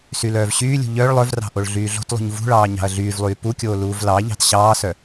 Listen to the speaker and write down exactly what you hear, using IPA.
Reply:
s y l œː v ɕ yː lʲ ṳ ʎ œ ɭ lˠ œ v r ɑ̤ ʔ o ɭ ɮ yː ɮ o̤ t lˠ ṳ ɲ v ṳ ɭ ɑː ɲ ɑ̤ ɐ̯ ɮ yː v lˠ yː p u kʲ oː l uː v l ɑ ʎ ɑ̤ t ɕ ɑː s œ

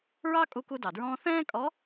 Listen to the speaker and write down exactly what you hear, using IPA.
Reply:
ɹ ɑ˥ kʼ u˧ k u˧ d ɑ˩ d ɹ ɔ̃ː˧ θ ɛ̃ː˥ kʼ ɔ˧˥

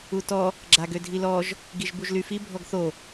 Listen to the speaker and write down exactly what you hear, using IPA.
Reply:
u t ɔ | ɡ͡ǁ a ɡ ø dʱ i l ɔ ʒ | ɡ i ʒ b u ʒ l y f i bʱ ɔ ɡ θ o

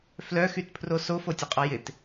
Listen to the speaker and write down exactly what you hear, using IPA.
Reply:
f l œ x y t pʰ r o s o f o tʲ ə qʼ ɔ j ɪ t

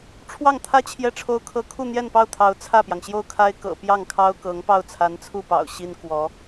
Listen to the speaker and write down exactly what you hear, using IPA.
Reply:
ʈ͡ʂʰ w ɑ˥˩ ŋ t̪ʰ ä˥ t͡ɕʰ j ɛ˥˩ ʈ͡ʂʰ o˥ ʊ̯ kʰ ɤ˥ kʰ u˥˧ n̪ j ɛ˥˧ n p ɑ˥˩ ʊ̯ t̪ʰ ɑ˧˥ ʊ̯ t͡sʰ ä˥˩ p j ɑ˩ ŋ ɕ j o˥˩ ʊ̯ kʰ a˥ ɪ̯ k ɤ̰˨˩ p j ɑ˥˩ ŋ kʰ ɑ˥ ʊ̯ k ɤ˧˥ ŋ p ɑ˥˩ ʊ̯ t͡sʰ a˧˥ n t͡sʰ u˥˩ p ɑ̰˨˩ ʊ̯ ɕ i˥ n k w ɔ˧˥

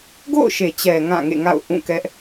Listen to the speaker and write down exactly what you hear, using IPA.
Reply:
ɡ o̰˦˨ ʊ̯ ʃ e˨ t͡ɕ ɛ˨ ŋ ã˦˨ ŋ ḛ˦˨ ŋ a̰˦˨ ʊ̯ ʔ ũ˦˨ k ɛ˦ ʔ

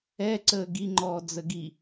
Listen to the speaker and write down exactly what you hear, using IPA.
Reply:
ɛ ǀ əː ɡ i ŋ͡ǃ ɔː d͡z ə ɡ i

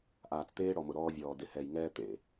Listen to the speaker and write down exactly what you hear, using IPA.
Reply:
ʔ aː˨ t͡s t̪ eː˦ ɽ ɔ˨ m ʊ˨ ɾ ɔː˦ vʲ ɔː˨ d ɪ˨ h ɛ˨ j ŋ ɛː˦ t̪ ḛ˦˨

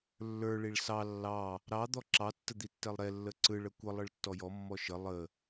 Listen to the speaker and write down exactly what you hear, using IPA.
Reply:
lː ə˞ ɭ i ɭ s ɑ lː ɑ | ɾ ɑ d̪ ɔ ǁ ɑ tː ə d̪ i tː ɛ lˠ ɾ ɛ lː ə ǀ ɯ ɭ ə kʷ ə lˠ ɯ ɭ tː ɔ j ɔ mː ɔ ʃ ə lˠ ə

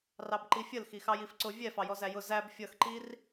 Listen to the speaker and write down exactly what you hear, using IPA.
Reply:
r ɑ b ǃ i fʲ ə l x i x ɑ j i f ǀ ʊ vʲ ɛ f ɑ j ɔ z æ j ʊ z æ b fʲ ʌ x ǃ i r

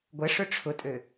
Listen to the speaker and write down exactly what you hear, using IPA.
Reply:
ɡʷ ə ʂ ʊ ʈ͡ʂʰ ʊ tʼ ø

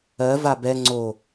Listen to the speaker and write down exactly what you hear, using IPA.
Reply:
ɜ v a b ɛ ŋ͡ǀ o

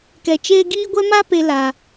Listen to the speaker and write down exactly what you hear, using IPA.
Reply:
k ɛ˧ t͡ʃ eː˦ ɡ iː˦ ɡʷ ɛ˦ m a˦ p e˧ l aː˧

